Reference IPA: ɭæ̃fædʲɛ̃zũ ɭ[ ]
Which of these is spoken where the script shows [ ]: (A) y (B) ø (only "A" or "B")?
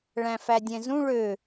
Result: B